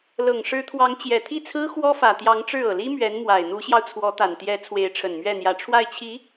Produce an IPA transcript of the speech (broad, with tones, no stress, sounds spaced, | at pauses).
l ɤ˨˩ ŋ ʂ ɻ̩˧˥ t̪ʰ w ɑ˧˥ ŋ t͡ɕ j ɛ˨˩ t̪ʰ i˥˩ t͡sʰ ɹ̩˥ x w ɔ˥ f ä˨˩ t̪ j ɑ˧˥ ŋ ʈ͡ʂ ɻ̩˥˩ ɤ˨˩ l i˥ m ɥ ɛ˧˥ n m w a˨˩ ɪ̯ n̪ u˧˥ ɕ j ɑ˧ ʊ̯ t͡sʰ w ɔ˧˥ t̪ a˨˩ n t̪ j ɛ˧˥ t͡sʰ w e˧˥ ɪ̯ ʈ͡ʂʰ ə˨˩ n m ɥ ɛ˥˩ n̪ j ä˧˥ ʈ͡ʂʰ w a˥˩ ɪ̯ t͡ɕʰ i˧˥